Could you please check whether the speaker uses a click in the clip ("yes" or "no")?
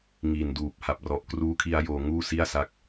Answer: no